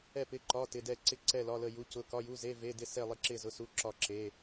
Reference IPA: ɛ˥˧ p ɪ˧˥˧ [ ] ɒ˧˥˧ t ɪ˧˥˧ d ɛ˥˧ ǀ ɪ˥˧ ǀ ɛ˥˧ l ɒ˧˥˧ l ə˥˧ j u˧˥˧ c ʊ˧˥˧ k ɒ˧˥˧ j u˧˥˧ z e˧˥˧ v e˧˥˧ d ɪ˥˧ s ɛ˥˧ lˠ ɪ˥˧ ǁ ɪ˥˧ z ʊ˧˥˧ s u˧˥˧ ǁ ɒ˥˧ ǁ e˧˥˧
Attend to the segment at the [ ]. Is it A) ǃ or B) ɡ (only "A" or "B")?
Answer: A